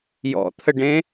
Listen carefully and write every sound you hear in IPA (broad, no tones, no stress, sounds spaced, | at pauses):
j ɔ̰ t̪ʰ ə ɖ ẽ